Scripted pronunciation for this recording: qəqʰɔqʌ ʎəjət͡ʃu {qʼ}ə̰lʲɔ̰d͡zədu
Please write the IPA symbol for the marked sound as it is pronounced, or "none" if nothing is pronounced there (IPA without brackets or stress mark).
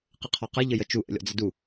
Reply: ʔ